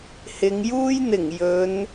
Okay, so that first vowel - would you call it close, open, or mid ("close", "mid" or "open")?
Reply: close